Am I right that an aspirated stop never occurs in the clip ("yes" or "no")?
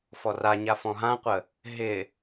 yes